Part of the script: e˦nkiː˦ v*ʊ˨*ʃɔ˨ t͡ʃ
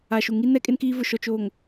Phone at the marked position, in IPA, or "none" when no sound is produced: ʊ˨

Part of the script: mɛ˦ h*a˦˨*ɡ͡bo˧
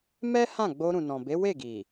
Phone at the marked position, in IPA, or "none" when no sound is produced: ã˦˨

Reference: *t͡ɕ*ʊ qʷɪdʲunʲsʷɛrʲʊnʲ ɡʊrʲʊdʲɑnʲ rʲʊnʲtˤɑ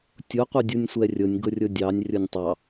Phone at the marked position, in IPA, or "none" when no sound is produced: tʲ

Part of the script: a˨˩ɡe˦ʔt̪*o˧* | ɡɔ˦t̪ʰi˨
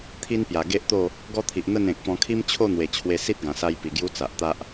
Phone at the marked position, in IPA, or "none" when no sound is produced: o˥˧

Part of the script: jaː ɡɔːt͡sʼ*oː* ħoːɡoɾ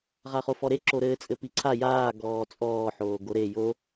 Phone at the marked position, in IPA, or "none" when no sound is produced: ɔː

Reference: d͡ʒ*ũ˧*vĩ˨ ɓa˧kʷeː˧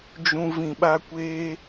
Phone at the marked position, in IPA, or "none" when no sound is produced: ũ˧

